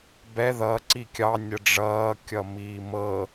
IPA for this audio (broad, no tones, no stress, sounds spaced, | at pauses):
b ɛ ð ʌ ǀ i kʲ ɑ nʲ ə ɖ͡ʐ ʌː kʲ ʌ m iː m ɤ